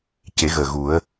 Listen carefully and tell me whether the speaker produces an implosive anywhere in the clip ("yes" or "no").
no